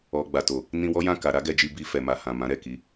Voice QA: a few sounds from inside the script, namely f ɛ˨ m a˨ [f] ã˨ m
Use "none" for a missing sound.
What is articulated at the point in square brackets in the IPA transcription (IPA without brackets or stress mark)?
h